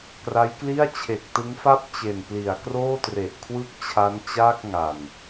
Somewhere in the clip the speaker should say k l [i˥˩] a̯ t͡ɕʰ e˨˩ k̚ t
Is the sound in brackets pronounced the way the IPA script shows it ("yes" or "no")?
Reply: yes